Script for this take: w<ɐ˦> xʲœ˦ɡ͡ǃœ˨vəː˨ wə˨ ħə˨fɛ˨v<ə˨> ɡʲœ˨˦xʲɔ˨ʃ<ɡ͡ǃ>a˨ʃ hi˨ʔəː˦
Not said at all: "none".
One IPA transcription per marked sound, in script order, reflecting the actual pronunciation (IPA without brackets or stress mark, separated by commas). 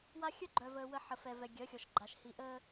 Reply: a˦, ɛ˨, ɡ͡ǃ